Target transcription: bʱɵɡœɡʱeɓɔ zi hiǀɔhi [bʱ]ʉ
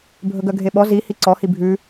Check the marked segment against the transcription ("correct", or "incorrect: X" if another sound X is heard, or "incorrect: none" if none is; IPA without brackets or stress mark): correct